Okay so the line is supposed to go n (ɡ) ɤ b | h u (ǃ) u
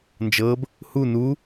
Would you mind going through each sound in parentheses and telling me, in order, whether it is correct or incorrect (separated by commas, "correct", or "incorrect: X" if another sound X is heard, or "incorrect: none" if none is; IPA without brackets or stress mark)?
incorrect: d͡ʒ, incorrect: n